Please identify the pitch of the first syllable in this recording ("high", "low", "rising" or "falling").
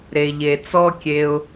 low